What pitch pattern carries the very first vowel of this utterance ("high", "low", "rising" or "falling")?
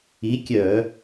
rising